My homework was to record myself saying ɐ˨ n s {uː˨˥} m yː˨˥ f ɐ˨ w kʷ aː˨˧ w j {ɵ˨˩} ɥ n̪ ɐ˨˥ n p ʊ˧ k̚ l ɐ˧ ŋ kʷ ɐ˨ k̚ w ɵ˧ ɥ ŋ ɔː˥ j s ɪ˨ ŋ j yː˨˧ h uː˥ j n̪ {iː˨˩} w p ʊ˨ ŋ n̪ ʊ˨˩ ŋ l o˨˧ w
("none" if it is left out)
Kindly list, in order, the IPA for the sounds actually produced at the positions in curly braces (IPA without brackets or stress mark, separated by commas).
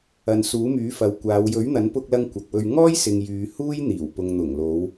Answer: uː˨˥, ɵ˨˥, iː˨˩